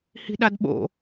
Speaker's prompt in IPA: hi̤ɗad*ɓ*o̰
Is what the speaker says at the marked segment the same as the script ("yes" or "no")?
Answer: yes